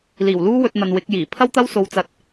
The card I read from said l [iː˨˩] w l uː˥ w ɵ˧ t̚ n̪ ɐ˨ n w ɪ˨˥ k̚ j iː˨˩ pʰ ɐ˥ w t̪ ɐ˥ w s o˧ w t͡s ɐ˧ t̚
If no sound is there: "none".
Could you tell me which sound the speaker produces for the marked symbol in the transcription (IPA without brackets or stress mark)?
iː˨˩